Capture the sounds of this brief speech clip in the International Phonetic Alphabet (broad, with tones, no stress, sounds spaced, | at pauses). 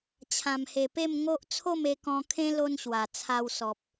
t͡ɕʰ ã˨˩ m h e˨˩ p e˥˧ m ŋ o˦ ʔ t͡sʰ o˥˧ m e˧ k ɔ̃˧ kʰ ẽ˦ l o˦ n ɕ w a˨˩ t͡sʰ a˧ w s ɔ˨ p̚